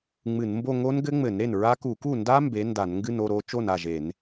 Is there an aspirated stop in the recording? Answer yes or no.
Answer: no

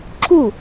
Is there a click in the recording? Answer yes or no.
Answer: yes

